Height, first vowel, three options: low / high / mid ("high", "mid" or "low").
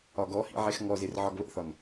low